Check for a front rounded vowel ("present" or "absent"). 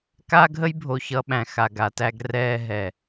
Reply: absent